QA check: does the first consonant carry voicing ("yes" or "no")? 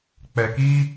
no